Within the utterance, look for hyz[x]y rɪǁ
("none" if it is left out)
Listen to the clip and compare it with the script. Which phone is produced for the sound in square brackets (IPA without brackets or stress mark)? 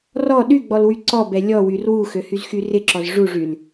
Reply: x